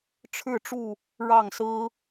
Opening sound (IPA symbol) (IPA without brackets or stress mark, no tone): ʈ͡ʂʰ